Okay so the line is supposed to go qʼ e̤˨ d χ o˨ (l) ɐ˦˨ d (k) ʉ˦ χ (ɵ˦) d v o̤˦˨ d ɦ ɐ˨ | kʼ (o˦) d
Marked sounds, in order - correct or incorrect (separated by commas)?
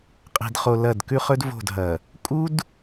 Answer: correct, correct, correct, incorrect